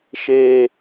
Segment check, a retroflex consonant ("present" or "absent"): absent